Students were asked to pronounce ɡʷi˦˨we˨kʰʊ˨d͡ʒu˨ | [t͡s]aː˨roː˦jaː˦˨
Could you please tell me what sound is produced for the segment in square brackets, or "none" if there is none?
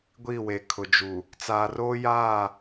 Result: t͡s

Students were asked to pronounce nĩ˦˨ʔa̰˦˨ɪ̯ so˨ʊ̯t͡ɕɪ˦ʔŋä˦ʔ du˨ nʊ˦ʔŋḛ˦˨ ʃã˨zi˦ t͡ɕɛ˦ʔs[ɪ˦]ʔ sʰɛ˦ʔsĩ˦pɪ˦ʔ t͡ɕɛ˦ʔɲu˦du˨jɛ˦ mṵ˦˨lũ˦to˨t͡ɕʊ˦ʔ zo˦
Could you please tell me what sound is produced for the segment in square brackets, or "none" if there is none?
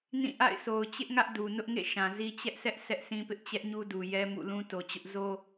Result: ɛ˦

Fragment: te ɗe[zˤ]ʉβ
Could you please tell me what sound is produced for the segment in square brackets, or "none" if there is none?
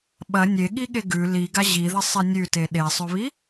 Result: sˤ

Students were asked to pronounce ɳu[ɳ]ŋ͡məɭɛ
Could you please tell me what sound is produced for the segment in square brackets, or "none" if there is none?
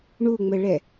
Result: none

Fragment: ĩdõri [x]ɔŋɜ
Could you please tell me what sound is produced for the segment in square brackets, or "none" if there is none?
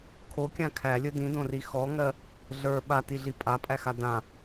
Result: x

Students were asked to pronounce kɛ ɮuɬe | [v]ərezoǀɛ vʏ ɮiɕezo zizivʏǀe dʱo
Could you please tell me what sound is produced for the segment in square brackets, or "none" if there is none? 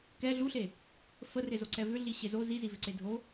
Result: f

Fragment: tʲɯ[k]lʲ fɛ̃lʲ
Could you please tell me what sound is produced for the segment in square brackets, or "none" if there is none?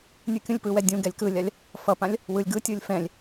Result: none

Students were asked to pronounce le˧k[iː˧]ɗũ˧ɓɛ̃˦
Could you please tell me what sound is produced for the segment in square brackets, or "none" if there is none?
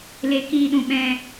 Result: iː˧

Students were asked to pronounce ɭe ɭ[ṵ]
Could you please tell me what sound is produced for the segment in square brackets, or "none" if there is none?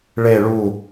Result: u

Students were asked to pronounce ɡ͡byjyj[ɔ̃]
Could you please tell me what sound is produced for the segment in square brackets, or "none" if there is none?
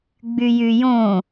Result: õ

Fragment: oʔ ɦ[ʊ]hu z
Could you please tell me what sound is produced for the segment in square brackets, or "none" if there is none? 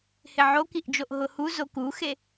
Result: ʊ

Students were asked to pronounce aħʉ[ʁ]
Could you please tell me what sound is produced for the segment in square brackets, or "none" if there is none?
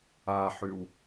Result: w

